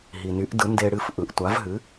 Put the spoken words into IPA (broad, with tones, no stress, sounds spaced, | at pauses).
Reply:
ɦ i˩ n y˩˥ ʔ d ɯ˩˥ n d e˧ ɽ ɨ˥˩ f ʔ ɯ˩ ʔ tʷ a˩˥ v ɦ ɨ˩˥